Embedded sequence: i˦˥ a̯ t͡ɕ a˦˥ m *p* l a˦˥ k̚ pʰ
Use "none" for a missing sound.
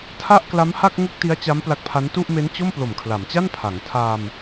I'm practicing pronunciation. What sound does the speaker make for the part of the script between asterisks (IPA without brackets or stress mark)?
p